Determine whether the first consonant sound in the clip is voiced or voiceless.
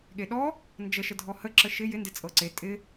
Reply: voiced